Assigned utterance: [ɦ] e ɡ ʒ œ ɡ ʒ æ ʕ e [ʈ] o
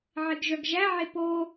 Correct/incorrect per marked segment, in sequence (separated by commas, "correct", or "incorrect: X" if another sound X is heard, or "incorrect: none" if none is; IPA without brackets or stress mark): incorrect: ʕ, incorrect: p